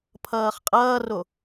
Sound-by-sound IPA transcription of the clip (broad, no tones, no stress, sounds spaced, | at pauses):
pʰ ʌː χ qʼ ʌː r o